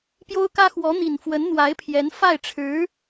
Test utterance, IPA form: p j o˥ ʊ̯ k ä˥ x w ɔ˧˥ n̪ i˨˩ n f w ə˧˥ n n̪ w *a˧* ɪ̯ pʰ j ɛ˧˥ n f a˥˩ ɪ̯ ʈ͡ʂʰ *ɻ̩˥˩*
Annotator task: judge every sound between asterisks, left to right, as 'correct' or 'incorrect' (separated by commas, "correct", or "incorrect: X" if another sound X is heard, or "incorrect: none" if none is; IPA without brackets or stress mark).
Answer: incorrect: a˧˥, incorrect: ɻ̩˧˥